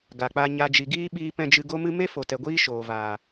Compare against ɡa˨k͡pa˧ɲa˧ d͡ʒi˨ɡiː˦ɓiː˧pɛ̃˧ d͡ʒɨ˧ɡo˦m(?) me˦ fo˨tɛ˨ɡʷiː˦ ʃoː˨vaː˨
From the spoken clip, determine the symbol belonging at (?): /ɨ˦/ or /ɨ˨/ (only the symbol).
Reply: ɨ˦